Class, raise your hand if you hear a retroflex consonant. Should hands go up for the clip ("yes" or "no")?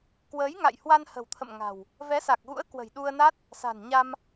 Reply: no